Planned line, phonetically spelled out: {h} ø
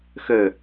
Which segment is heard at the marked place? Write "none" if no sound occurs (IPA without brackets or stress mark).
x